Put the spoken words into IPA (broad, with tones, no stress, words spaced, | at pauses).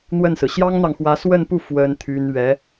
n̪wə˥˩nsɹ̩˩ ɕjɑ˥ŋn̪ɑ˨ŋxwä˧˥ swə˥˧npu˥˩ fwə˥nt̪ʰy˥n ɥɛ˧˥